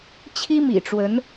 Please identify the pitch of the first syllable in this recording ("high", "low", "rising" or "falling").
high